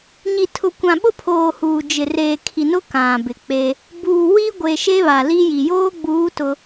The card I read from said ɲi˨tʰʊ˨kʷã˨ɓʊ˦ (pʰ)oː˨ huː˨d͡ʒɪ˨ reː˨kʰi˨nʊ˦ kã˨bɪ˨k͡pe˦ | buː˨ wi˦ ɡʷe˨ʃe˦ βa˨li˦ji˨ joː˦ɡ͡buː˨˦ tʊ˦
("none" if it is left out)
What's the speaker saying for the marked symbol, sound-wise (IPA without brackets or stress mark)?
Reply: pʰ